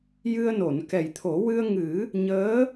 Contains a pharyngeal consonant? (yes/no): no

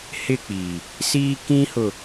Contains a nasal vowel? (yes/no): yes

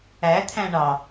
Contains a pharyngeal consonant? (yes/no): no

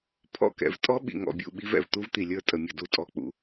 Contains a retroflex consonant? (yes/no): no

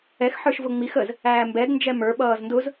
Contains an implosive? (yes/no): yes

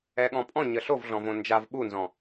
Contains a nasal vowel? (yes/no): yes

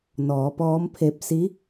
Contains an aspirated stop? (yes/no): yes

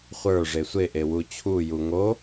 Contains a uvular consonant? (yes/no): yes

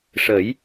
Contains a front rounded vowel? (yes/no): no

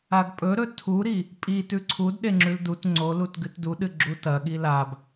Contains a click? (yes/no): yes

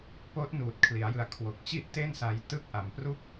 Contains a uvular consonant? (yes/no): no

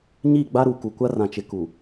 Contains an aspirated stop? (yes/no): no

